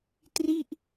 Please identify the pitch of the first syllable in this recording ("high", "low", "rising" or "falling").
falling